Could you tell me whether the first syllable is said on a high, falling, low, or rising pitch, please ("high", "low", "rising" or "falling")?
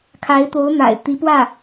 rising